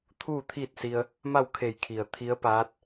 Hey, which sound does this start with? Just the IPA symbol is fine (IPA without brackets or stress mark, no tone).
t̪ʰ